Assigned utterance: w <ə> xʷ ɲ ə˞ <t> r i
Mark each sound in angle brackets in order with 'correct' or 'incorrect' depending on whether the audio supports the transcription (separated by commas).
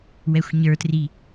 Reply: incorrect, correct